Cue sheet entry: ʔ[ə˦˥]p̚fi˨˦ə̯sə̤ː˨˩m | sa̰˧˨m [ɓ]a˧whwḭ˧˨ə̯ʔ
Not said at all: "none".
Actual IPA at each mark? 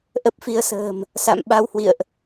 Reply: ə˦˥, ɓ

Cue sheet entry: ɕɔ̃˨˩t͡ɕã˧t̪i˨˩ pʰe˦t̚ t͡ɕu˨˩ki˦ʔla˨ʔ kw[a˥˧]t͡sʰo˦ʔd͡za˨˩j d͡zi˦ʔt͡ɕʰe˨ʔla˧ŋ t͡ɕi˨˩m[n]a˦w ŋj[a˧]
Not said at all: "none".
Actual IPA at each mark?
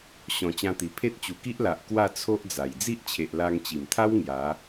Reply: a˥˧, t̪ʰ, a˨˦

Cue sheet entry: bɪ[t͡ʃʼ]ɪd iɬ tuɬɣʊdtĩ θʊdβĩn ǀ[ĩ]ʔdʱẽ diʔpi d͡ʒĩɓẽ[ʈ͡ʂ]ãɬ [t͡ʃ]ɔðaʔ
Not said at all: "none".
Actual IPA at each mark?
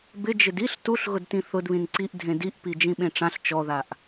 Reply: d͡ʒ, i, ʈ͡ʂ, t͡ʃ

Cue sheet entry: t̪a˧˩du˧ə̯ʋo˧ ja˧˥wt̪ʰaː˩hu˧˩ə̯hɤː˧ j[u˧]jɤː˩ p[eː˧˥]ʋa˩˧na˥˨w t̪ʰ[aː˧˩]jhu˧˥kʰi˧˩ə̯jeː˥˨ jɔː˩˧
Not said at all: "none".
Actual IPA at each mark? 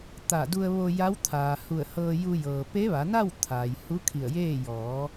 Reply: u˧, e˧˥, aː˩

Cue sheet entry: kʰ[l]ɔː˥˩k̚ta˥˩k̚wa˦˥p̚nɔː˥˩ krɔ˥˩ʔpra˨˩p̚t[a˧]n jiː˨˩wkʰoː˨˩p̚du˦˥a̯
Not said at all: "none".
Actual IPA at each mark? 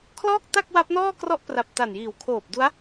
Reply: l, a˨˩

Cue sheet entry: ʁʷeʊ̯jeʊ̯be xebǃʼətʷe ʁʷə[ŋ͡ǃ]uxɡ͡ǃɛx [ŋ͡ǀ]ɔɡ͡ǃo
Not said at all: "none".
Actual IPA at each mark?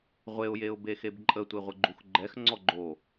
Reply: ɡ͡ǃ, ŋ͡ǀ

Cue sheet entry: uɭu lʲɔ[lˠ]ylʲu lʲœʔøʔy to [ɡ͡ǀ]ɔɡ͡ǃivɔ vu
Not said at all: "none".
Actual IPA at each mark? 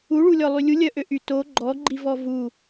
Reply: lˠ, ɡ͡ǃ

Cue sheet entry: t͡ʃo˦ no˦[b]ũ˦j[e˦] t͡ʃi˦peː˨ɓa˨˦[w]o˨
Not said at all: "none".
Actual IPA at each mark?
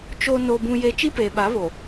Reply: b, e˦, β

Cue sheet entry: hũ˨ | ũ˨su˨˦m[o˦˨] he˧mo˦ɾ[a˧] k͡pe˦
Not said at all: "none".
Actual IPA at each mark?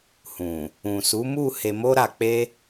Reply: u˦˨, a˧

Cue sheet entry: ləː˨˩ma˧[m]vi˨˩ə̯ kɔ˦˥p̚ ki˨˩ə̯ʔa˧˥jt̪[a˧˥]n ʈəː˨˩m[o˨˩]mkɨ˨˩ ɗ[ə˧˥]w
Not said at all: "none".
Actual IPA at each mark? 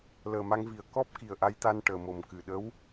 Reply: ŋ, a˧, o˨˩, ə˧˥

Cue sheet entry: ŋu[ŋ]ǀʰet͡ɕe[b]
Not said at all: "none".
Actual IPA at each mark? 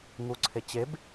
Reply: none, b

